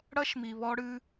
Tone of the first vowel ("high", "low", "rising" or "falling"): high